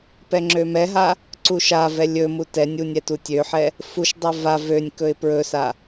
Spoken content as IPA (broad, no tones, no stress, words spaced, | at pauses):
pɛŋ͡ǁømɛɦa | ǀuʃavɛ lʲɵmu tɛnʲu nʲɛtutʲøħɛ | fuʃdˤɛ va vønʲkɵɪ̯ pɹɵsa